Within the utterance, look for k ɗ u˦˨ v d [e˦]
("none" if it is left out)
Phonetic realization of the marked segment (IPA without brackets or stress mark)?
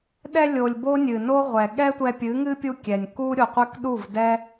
ɛ˦